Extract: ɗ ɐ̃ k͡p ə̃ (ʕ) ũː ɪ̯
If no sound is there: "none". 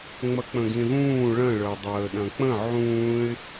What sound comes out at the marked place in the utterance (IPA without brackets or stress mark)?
ʕ